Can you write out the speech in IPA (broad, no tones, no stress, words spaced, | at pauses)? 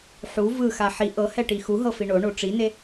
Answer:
ħu vɯxa ħi ʔɤhɛ ʈixuɦɤ fiɳoɳo ʈ͡ʂine